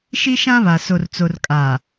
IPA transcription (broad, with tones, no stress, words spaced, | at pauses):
ʃi˦ʃã˦βa˨ so˨rt͡so˨rkʼa˨